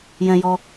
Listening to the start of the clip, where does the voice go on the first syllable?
high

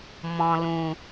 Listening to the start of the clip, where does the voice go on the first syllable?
low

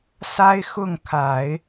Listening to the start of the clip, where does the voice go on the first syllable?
high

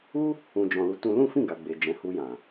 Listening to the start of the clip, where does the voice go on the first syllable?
high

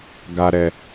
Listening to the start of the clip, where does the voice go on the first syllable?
low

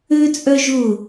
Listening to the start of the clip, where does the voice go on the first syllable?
high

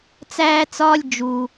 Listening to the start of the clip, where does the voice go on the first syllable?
high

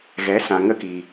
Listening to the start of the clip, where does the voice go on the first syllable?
rising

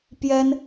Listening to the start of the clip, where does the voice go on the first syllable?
high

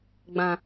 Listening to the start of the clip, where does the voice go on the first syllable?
low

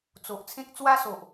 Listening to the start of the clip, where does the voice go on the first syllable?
low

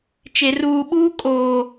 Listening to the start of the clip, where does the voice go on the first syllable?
low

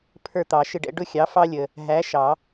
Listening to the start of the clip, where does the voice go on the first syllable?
falling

